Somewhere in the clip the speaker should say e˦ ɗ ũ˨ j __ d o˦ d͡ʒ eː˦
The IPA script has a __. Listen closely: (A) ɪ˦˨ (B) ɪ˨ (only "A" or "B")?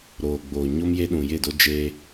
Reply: A